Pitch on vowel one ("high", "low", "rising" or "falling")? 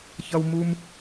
high